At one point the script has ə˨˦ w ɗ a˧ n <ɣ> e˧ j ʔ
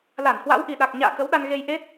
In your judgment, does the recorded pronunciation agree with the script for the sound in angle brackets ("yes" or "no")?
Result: yes